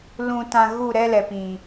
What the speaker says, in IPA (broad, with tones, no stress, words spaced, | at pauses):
lũ˧tã˧ ɣu˦˨ ɾɛ˦lɛ˨pĩ˨